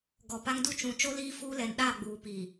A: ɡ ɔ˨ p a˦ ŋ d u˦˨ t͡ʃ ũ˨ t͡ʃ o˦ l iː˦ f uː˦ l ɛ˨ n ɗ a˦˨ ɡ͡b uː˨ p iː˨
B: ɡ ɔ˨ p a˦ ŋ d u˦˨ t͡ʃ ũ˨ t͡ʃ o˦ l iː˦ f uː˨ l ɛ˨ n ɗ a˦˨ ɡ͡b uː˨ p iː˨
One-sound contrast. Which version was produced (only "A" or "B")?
A